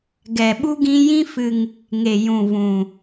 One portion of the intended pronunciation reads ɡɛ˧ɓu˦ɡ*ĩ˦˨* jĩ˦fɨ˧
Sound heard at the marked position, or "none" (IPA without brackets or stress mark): ĩ˦